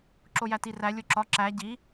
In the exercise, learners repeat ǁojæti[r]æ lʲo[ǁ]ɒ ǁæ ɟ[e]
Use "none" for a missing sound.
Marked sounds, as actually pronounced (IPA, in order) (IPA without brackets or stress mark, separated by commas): r, ǁ, i